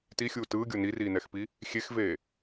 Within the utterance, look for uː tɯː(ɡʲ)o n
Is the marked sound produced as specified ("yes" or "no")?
yes